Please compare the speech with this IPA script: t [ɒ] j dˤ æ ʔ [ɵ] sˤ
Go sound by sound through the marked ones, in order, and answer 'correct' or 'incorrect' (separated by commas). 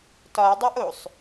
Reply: correct, incorrect